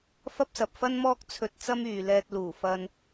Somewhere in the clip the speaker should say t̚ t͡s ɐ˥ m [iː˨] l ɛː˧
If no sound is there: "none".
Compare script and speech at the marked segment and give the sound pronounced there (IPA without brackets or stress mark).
yː˨